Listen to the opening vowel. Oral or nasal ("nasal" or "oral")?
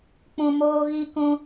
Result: nasal